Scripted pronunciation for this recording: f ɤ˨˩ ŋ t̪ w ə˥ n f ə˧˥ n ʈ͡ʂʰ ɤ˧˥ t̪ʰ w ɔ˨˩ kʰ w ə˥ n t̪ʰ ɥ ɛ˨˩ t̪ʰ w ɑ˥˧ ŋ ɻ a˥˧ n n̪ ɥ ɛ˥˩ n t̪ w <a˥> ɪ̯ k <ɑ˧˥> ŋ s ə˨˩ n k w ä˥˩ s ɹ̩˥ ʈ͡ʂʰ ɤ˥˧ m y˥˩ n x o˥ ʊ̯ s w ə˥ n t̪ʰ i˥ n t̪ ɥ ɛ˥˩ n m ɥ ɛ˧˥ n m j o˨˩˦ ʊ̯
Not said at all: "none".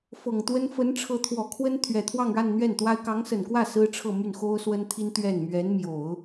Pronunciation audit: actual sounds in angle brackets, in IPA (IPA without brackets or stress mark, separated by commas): a˥, ɑ˧˥